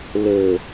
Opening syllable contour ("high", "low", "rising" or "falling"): low